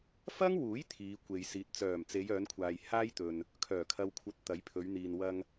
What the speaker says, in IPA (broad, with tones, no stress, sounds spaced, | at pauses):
f ɐ˥ ŋ w uː˨˥ j t̪ʰ iː˨˧ kʷ e˨ j s iː˨ t̚ t͡s œː˨˩ m t͡s e˨˧ j œː˨˧ n kʷʰ aː˨ j h aː˥ j t̪ ɵ˨ n | kʰ œː˨˩ kʰ ɐ˨ w kʷʰ ɐ˨˥ t̚ t̪ ɐ˨˥ j pʰ ɵ˨˧ ɥ n̪ iː˨ n w ɐ˧ ŋ